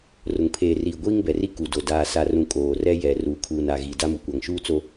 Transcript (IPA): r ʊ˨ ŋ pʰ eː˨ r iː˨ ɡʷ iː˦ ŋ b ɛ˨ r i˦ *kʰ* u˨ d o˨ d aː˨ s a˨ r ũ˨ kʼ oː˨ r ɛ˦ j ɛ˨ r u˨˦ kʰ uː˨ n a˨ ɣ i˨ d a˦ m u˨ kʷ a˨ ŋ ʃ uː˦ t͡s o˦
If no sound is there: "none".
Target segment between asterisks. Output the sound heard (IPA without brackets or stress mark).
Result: k